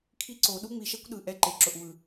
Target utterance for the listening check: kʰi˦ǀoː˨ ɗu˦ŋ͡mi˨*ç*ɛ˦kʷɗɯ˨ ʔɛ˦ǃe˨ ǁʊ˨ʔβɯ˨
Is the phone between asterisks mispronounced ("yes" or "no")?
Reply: yes